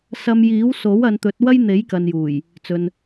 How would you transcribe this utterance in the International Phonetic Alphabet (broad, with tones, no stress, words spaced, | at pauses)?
sɐ˧mjiː˨˥w so˨˥wɐ˨˧nt̪ɵ˨˥t̚ wɐ˥jn̪e˨˥jkɐ˨njuː˨˩j | t͡sɵ˨n